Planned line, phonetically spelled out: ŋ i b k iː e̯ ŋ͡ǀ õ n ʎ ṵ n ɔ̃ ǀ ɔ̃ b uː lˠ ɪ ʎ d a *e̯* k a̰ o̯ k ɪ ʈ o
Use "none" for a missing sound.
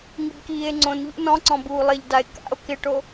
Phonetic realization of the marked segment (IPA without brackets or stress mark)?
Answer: e̯